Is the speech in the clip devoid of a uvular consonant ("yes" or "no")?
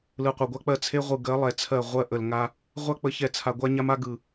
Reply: no